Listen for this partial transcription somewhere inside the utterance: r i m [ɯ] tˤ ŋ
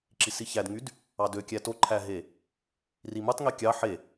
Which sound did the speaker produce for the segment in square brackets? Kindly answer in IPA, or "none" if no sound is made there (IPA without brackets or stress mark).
ɯ